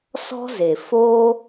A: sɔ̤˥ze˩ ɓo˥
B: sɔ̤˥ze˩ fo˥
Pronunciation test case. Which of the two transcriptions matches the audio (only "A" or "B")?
B